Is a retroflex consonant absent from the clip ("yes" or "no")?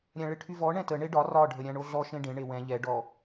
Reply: no